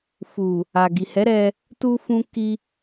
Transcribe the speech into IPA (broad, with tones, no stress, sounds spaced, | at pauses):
f u˨ | a˨ ɡ i˨ h ɛ˨˦ ɾ ɛ˧ | t u˧ f ũ˧ k i˧